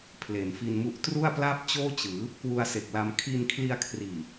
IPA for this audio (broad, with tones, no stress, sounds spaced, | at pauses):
pʰ l e˩˦ n f i˧ n m u˦˥ ʔ t r u˥˩ a̯ p l a˥˩ p̚ t͡ɕ oː˥˩ t͡ɕ ɯː˩˦ | k w u˧ a̯ s e˨˩ k̚ l a˧ m kʰ i˧ n kʰ l i˧ a̯ kʰ r iː˨˩